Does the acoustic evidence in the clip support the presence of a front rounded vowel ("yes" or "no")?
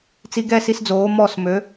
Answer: yes